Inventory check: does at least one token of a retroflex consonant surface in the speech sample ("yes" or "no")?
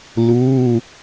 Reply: no